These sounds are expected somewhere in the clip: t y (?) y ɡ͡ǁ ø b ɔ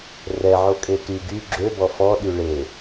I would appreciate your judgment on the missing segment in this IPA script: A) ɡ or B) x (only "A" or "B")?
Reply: A